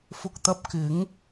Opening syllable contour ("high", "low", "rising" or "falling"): low